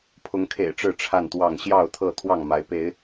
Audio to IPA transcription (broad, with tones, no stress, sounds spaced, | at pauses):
pʰ ʊ˨˦ ŋ kʰ ḛ˨˩ ɪ̯ ʈ͡ʂ ɻ̩˥˨ ʈ͡ʂʰ a˥˨ n t̪ w ɑ˥˨ ŋ ɕ j ɑ˥˨ ʊ̯ t̪ʰ ɤ˥˨ t̪ʰ w ɑ˥˨ ŋ m a˨˦ ɪ̯ p e˨˦ ɪ̯